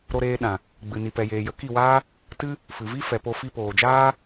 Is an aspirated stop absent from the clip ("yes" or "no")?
yes